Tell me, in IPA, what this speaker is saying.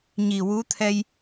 ɲi˨˩wu˧˥t̪ʰɛ˧j

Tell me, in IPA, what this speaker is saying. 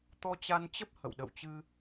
t̪ɔ˧t͡ɕa˧nt͡ɕə˦˥p̚ hə̰˧˨wɗə̰˧˨wt͡ɕɨ˧

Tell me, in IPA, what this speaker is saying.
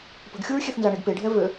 pə̤ɡxʲuɹxʲeθ nzaɳeɡpeɖʱɛ vø

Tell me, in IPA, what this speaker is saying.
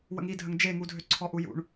wə̰ŋidʱəŋ d͡ʒeŋudʱø ǀʰɔʔujṵɳ

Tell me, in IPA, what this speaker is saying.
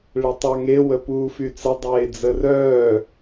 ɭetˤaŋe wəpuːfyt͡sə dˤeːd͡zərœː

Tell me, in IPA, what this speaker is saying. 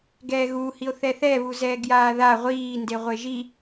ɡɛːɣuː hio̯θɛθɛ βuzɛːɡjaːða ʁʷiː ndeʁʷeʒi

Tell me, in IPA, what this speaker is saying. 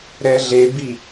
ɾɛɮebi

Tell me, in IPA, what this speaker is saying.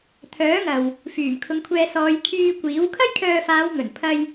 t̪ʰœː˨˥ ŋɐ˨w | fyː˨˩mkʰʊ˨˧ŋkʷʰɛː˧ sɔː˨˧jkʰyː˧kʷiː˨˥w kʰɐ˥jkʰœː˧faː˨˧wŋɵ˨˩n pʰɐ˧j

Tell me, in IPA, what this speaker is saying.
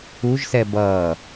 uʒsɛ bʌː

